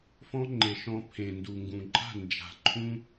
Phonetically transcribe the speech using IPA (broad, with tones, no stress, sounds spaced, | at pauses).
f ɔ̃˦ ŋ͡ǃ e˨ ʃ ɔ̃˧ pʰ ẽ˨ n d u˨ ŋ ɡ ũ˨ ǃʼ a̤˦˨ n d͡ʒ a̤˨ ǃʰ ũ˦